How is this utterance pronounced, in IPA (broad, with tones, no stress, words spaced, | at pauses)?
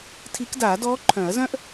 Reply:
tʰi˧˥k daː˨˩˦dɔː˧˥ ǃʰœ̃˨˩˦ɐ̯zœ̃˥ʔ